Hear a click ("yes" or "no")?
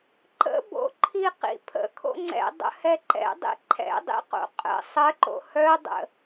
yes